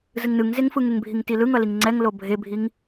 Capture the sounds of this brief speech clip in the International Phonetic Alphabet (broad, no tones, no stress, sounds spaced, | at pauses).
z ɯ ŋ n ɯ ŋ z e ŋ f ɯ ŋ e ŋ bʱ i ŋ t i l ɯ ŋ ʌ l i ŋ ŋ͡ǀ ɛ ŋ l o bʱ e bʱ i ŋ